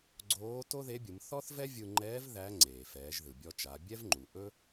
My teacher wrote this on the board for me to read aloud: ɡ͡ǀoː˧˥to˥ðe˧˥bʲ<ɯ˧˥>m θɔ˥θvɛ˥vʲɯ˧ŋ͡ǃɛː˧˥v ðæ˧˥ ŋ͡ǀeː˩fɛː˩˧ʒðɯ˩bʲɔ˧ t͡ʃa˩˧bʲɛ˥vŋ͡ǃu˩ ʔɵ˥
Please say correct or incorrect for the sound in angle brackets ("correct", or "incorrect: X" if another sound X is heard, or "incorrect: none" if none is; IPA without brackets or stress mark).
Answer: incorrect: ɯ˩˧